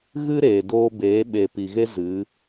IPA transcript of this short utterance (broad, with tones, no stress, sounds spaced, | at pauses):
ɣ ɨ˦ ɾ eː˨ d oː˧ b eː˨˦ ɓ e˨ p i˨ ɣ e˦ z ɨ˨˦